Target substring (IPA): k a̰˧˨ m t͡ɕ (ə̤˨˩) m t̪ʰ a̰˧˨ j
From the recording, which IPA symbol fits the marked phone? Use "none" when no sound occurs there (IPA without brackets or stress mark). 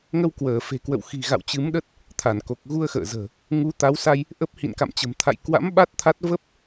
ə̤˨˩